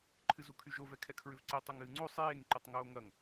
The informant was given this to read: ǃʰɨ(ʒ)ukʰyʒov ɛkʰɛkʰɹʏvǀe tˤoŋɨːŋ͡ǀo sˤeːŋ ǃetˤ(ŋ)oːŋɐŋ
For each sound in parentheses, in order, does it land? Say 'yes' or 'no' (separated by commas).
no, yes